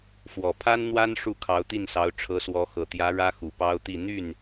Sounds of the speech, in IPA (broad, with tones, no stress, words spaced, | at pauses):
fwɔ˨˩pʰa˥nn̪wa˥n ʂu˥˩kʰɑ˧˥ʊ̯t̪i˥˩nsɑ˧˥ʊ̯ ʈ͡ʂʰɤ˧˥ swɔ˧˥xɤ˨˩t̪jä˧˥ ɻä˥xu˨˩pɑ˥ʊ̯t̪i˥˧ n̪y˥˩n